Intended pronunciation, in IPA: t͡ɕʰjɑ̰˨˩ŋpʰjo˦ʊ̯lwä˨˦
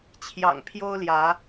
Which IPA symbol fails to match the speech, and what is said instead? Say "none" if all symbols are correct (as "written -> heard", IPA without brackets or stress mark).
w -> j